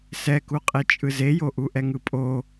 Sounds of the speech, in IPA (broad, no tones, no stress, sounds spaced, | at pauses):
s ɛ k u qʼ e t͡ʃʼ ɯ z e j o ʔ u ʔ ɛ ŋ ɯ pʼ o